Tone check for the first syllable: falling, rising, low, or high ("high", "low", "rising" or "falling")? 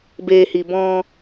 low